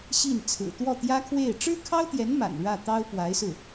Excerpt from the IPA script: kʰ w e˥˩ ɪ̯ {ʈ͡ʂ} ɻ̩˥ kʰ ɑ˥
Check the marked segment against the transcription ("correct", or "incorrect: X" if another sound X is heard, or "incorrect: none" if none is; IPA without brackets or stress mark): correct